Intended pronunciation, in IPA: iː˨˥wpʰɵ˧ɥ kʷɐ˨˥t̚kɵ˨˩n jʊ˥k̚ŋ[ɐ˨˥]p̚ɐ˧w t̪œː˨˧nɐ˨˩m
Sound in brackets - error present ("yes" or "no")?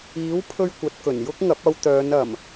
no